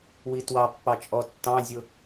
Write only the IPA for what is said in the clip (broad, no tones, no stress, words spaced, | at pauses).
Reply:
witwɑpːɑ t͡ʃʼɔtːɑ̃zʲʊ